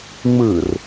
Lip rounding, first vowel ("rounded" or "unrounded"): unrounded